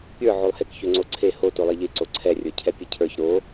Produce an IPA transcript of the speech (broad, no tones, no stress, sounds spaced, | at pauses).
pʲ ə˞ ʕ o lˠ h e k ç ø ŋ͡ǀ o ǀʰ e h o t o lˠ e ʎ e ǀ o ǀʰ ɛ rʲ ə˞ cʰ ɛ pʲ e cʰ ə˞ ç ɾ o